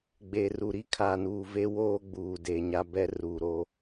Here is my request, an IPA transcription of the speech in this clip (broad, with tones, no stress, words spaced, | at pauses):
ɡ͡be˨ru˨ ɾi˦kʰaː˨nuː˨ve˦ woː˦ɡ͡buː˨ de˨ɲa˦ bɛ˦ruː˨ɾo˦